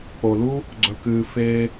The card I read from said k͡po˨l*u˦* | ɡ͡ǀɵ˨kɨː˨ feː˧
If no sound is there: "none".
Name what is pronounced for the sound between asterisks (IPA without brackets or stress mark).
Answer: u˦